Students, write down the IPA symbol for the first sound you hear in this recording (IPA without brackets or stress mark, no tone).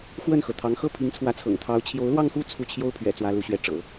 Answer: x